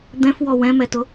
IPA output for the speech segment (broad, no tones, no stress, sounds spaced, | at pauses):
d̪ ɛ̃ f w ɔ w ɛ̃ m ɛ t ʊ